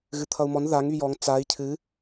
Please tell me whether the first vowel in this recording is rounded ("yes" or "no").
no